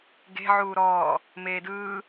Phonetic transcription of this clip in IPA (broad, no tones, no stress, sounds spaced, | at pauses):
ɡ e̤ ʕ uː ɾ ɔː | m eː d ɯː